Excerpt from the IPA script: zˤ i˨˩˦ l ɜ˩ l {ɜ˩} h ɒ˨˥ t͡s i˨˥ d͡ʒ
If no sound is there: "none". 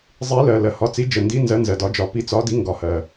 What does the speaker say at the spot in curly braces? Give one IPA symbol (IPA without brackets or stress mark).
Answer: ɜ˩